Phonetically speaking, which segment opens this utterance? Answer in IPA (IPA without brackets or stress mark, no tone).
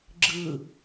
ɡ͡ǁ